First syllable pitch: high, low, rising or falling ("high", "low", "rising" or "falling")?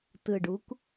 low